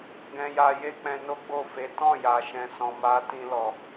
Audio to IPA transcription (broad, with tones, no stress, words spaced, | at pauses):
ɡɛ̃˧ja˧ je˦k͡pɛ̃˧no˦ ɡ͡bo˦˨fe˨˦ tɔ̃˦˨ja˨ʃɛ̃˨sɔ̃˨ ma˨˦ tĩ˧ lɔ˨